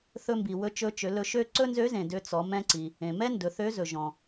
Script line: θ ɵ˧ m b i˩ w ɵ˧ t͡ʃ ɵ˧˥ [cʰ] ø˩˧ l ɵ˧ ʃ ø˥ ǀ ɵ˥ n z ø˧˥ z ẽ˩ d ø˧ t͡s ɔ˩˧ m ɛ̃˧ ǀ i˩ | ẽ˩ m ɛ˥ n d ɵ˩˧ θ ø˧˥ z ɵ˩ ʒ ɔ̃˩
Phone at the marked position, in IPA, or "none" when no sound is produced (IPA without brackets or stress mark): t͡ʃ